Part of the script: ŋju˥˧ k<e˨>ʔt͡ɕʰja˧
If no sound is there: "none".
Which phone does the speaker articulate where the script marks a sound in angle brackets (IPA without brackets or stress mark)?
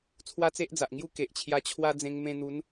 e˨